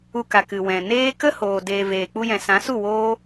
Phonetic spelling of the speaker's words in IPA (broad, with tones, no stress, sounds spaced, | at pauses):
u˧ k a˨ k ɨ˨ w ɛ̃˨ n eː˦ k ə˦ h oː˨ d eː˨ v eː˨ k͡p u˧ j ɛ̃˨ s ã˨˦ s u˦˨ w oː˦